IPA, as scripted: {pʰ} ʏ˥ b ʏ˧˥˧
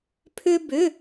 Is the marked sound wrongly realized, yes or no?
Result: no